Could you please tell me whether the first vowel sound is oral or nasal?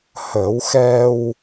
oral